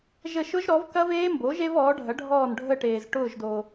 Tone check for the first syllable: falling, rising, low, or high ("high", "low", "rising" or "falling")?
falling